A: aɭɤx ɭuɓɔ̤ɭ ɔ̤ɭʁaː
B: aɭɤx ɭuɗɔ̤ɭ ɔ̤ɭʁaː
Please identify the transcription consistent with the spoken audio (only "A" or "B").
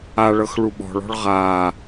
A